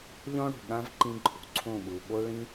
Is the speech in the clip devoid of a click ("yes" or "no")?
no